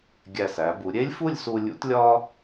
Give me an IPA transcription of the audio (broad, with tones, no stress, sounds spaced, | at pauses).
ɡʲ æ˧˩ s æ˩˧ b u˩˧ ɾʲ e˥ lʲ f u˥˧ lʲ s u˧ lʲ ṵ˥ t lʲ ɒ˥